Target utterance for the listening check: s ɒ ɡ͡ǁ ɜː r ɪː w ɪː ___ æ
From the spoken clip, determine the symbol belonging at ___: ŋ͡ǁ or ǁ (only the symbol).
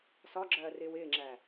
ŋ͡ǁ